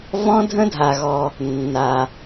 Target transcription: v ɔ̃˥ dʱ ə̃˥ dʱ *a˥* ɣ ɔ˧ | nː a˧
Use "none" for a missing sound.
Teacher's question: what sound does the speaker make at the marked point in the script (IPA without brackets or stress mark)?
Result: a˧